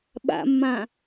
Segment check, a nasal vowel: present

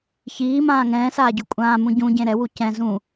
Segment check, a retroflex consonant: absent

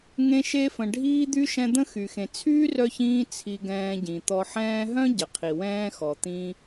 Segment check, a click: absent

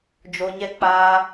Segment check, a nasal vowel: absent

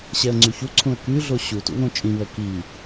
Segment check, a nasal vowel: present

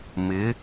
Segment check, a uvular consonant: absent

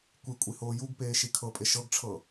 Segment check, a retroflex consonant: present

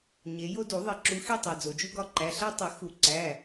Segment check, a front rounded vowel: absent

